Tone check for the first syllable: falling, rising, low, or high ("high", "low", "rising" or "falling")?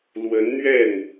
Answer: rising